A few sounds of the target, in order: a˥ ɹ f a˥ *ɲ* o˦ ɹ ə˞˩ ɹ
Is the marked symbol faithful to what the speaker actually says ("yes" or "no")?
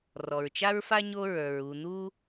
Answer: yes